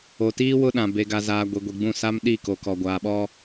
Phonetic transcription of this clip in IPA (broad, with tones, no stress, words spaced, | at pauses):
o˨tiː˦ wʊ˦ɗã˨ be˨ɡa˨zaː˨ ɡʷi˨ɡʷi˨ɡ͡bũ˦˨ sa˦mɗi˦˨ko˨kɔ˨ ɡʷaː˨ɓɔ˦